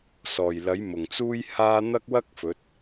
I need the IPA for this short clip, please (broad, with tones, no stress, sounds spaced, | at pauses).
s ɔː˨˩ j l ɐ˨˥ j m ʊ˨˩ ŋ t͡s uː˥ j h aː˥ n̪ ɐ˥ k̚ w ɐ˥ k̚ f ɵ˨˥ t̚